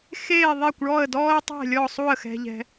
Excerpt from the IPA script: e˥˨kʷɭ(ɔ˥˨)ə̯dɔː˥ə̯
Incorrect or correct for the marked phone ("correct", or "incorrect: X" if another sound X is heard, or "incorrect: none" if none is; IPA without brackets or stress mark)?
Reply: correct